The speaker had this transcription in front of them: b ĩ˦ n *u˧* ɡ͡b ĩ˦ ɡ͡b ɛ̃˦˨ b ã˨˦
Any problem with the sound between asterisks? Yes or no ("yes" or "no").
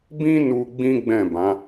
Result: no